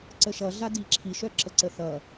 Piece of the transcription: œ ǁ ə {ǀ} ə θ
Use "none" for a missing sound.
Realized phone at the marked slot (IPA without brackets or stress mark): ǀ